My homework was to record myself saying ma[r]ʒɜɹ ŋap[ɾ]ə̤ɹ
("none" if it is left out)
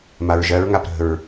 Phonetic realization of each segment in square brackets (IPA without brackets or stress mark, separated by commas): ɹ, ɾ